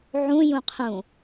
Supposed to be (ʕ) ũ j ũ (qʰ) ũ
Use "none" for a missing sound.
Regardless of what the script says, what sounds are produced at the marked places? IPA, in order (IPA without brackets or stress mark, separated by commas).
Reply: ʕ, qʰ